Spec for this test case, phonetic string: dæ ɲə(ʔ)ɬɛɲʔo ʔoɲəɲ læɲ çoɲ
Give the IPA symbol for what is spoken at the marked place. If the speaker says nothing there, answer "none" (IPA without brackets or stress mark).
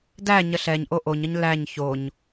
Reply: none